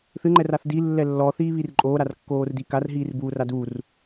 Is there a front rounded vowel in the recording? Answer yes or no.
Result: no